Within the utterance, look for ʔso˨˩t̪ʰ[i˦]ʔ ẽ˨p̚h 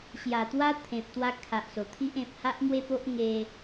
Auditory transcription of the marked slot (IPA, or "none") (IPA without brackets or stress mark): i˦